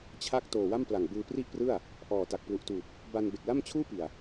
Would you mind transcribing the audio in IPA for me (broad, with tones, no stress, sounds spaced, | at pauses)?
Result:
t͡ɕʰ a˥˩ k̚ t oː˨˩ w a˥˩ m p l a˨˩ ŋ b ɯː˧ p r i˥˩ ʔ p r ɯ˥˩ a̯ | ʔ ɔː˨˩ t a˨˩ k̚ p l u˨˩ ʔ t uː˨˩ p̚ | b a˧ n b e˨˩ k̚ l a˥˩ m t͡ɕʰ uː˥˩ p i˨˩ a̯